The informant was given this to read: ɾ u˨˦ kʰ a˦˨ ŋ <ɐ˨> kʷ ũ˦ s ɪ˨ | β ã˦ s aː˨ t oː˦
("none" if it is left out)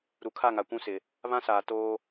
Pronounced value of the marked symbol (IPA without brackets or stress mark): a˨